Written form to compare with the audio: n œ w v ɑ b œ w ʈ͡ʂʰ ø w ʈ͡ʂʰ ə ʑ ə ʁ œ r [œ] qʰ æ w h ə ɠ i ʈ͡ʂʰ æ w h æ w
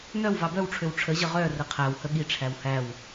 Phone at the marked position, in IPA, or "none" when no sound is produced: ə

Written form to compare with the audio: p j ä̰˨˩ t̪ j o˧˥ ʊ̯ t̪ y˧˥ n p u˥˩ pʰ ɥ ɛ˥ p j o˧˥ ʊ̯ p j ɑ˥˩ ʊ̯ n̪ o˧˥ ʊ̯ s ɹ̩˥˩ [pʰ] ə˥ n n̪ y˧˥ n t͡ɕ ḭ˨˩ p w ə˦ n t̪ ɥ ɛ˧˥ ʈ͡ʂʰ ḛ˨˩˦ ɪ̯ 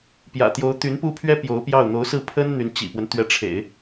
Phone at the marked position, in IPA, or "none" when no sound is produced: pʰ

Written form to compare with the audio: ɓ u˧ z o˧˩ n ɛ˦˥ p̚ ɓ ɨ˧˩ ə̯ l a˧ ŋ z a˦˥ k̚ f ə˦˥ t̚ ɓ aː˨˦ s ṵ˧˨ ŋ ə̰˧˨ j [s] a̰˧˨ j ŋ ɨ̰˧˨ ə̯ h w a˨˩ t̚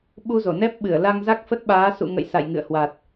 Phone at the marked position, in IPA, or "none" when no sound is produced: s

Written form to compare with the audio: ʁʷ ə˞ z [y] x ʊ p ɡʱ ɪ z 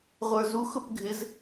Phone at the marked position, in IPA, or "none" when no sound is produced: u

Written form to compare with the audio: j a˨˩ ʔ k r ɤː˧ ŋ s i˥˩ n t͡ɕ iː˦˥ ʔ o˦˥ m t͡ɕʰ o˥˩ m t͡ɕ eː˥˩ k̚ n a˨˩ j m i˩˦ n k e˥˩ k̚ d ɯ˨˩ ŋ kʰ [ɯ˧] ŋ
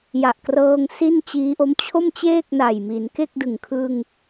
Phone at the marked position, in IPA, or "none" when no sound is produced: ɯ˧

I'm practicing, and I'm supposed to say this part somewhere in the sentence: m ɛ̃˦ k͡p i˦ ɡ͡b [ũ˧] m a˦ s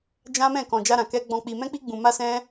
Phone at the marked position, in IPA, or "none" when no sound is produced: ũ˧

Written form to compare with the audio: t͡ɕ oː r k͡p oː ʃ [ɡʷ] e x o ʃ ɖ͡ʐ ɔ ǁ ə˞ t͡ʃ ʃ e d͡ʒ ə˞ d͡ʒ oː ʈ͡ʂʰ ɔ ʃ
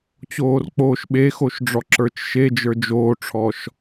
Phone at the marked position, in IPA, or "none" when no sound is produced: ɓ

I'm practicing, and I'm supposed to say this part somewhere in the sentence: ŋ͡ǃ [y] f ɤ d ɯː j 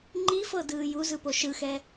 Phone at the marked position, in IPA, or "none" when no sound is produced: i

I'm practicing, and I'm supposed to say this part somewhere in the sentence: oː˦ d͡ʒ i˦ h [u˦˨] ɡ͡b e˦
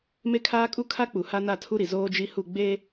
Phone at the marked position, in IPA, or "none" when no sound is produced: u˦˨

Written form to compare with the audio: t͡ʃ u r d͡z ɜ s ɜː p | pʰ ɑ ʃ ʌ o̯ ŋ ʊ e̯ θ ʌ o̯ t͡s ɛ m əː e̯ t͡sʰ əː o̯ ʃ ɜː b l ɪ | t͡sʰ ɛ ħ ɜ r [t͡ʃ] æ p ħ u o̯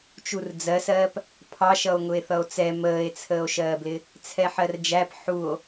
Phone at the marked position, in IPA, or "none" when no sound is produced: d͡ʒ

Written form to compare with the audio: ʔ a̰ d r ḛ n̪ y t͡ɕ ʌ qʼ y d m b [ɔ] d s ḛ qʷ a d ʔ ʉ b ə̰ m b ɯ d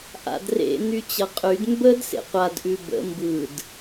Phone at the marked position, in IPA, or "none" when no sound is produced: ə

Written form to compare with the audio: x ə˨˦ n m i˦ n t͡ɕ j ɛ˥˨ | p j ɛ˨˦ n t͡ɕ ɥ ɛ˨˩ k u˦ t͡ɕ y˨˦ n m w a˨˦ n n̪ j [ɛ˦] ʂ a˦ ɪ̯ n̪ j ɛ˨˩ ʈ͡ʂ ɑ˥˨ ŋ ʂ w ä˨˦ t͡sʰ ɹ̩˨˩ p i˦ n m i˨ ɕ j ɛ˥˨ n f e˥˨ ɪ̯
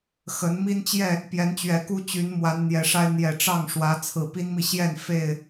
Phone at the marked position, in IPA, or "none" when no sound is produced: ɛ˨˩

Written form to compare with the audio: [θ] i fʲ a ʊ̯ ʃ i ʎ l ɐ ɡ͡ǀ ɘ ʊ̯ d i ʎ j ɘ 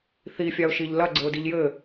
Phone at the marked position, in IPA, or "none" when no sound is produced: θ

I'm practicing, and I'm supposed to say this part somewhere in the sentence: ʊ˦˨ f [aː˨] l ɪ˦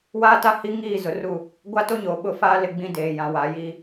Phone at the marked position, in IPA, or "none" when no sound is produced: aː˦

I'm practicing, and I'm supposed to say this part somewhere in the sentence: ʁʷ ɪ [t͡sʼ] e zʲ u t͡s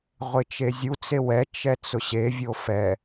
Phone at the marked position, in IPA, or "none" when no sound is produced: t͡ʃ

